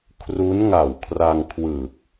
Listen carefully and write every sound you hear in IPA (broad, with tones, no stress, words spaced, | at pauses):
kʰru˦˥nŋa˨˩wkʰra˧ŋkʰwɯ˨˩k̚